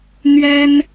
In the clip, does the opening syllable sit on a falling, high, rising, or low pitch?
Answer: high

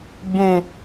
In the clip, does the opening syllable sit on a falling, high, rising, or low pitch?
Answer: high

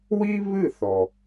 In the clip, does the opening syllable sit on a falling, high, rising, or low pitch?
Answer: high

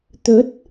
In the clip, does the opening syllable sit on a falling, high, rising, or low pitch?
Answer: rising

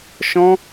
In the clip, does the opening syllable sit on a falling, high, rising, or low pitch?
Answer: high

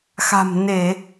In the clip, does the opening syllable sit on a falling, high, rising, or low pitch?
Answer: low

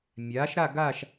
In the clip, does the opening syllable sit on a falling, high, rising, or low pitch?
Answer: rising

